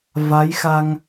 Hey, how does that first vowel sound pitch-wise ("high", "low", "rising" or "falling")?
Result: rising